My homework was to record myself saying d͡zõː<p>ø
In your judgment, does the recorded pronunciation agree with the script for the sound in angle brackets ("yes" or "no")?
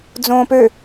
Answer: yes